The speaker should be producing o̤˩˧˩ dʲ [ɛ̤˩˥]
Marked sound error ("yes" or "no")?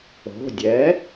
yes